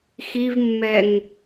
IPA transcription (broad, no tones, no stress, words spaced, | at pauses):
xivmːɛŋ